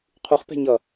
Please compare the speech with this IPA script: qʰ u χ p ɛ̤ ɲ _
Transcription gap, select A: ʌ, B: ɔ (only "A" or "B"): A